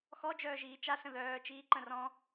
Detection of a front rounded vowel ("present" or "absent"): present